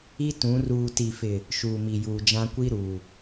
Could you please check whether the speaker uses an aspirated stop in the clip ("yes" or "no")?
no